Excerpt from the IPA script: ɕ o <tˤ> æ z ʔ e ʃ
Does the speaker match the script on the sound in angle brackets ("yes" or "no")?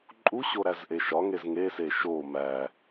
no